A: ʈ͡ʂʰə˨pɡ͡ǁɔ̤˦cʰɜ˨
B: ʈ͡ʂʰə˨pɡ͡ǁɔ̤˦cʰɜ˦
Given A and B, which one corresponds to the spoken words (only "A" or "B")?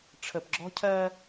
B